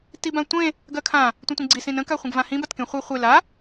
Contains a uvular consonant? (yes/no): yes